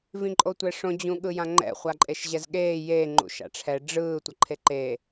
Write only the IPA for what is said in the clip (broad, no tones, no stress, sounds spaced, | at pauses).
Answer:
v ĩ ǃʼ o tʷ ɛ ʂ õ d͡ʑ ũ ɠ ɯ j ã ŋ͡ǃ ɛ̰ χʷ a ǃʼ e ʃ ʑ ɛ z ɠ eː j e ŋ͡ǃ ṵ ʃ a̰ ʈ͡ʂʰ ɛ ɖ͡ʐ ɯː tʷ ʌ ǃʰ e ǃ eː